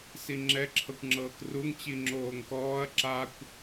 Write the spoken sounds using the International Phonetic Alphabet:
s i ŋ͡ǁ ɛ ǁʰ ɤ kʷ ŋ͡ǁ ɤː k r u ŋ t͡ɕ i ŋ͡ǁ oː ŋ k ɔː ɐ̯ ǁ a kʷ

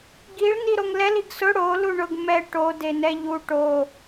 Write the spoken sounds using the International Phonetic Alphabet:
ɡ i ɭ n i ɾ o ŋ l ɛ l i ɡ s ʊ ɽ o l u ɳ ʊ ɡ m ɛ ʈ o d e n ɛ ʎ u ʈ o

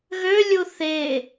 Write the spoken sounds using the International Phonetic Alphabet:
ɣ ø lʲ u θ e

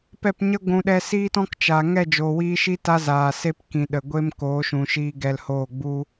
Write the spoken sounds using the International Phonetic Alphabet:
p ɛ˦˨ p ɲ ə˦ ɡʷ ũ˨ ɗ ɛ˧ s iː˦ t ɔ̃˦ k t͡ʃ a˨ ŋ ɛ˦˨ d͡ʒ oː˨ w iː˧ ʃ iː˦ t a˦ z aː˨ s e˦ p k ĩ˨ ɗ ə˨ ɡʷ e˦ m k oː˨˦ ʃ ũ˨ ʃ iː˧ ɡ ɛ˧ l h oː˦˨ ɡ͡b u˧

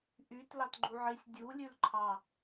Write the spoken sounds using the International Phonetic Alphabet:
ʔ y t l ɑ t ɡ͡ǃ u ʕ i sʲ dʲ u lʲ ʉ l ǃʰ ɑ

